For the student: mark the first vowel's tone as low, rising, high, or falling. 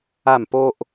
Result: falling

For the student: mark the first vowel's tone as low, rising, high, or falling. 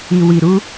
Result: low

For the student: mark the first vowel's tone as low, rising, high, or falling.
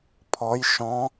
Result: rising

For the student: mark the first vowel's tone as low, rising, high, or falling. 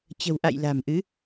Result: low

